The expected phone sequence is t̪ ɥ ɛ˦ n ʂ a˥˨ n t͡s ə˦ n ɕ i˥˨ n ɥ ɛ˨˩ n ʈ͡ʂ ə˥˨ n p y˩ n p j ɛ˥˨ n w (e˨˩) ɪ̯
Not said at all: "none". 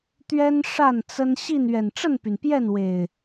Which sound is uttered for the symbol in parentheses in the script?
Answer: e˨˩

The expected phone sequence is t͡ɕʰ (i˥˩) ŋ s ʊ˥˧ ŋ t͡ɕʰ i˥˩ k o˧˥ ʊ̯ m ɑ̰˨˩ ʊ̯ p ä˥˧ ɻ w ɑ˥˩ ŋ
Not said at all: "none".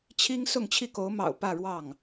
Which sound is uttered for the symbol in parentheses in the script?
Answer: i˥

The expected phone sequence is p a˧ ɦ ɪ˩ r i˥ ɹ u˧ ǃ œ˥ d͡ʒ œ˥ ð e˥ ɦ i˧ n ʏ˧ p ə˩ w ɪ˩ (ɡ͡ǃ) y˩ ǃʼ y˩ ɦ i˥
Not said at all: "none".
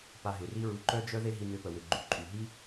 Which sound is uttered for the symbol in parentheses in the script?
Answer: ɡ͡ǃ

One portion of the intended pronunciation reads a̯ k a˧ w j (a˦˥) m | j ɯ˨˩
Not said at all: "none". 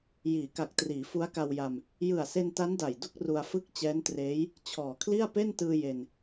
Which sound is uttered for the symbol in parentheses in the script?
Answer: a˧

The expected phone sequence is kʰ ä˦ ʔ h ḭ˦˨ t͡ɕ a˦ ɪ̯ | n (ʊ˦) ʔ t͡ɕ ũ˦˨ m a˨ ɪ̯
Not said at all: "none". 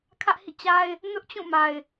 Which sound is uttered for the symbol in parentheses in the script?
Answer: ʊ˦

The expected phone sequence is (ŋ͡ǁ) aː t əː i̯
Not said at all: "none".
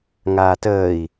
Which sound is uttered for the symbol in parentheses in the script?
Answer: ŋ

